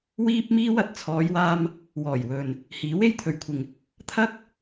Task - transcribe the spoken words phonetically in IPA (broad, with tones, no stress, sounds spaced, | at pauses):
w iː˥ p̚ m iː˥ w ɐ˨ t̚ t͡sʰ ɔː˨˧ j w aː˧ m | w ɔː˨˩ j w ɵ˨ n | h iː˨˥ w e˥ j t̪ʰ ɵ˨ ɥ kʷʰ ɪ˨ ŋ | t̪ʰ ɐ˥ k̚